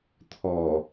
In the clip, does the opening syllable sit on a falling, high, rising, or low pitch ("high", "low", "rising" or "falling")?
low